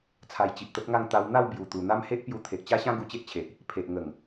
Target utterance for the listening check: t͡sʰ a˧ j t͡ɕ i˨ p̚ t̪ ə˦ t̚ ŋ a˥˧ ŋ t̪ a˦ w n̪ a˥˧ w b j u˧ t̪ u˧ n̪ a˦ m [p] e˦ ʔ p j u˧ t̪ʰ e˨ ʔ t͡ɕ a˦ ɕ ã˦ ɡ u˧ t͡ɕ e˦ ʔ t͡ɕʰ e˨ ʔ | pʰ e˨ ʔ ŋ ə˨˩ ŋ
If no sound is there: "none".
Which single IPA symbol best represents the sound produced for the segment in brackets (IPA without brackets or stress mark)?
h